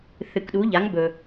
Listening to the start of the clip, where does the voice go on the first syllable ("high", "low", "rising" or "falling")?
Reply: low